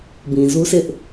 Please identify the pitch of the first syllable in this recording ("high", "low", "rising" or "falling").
low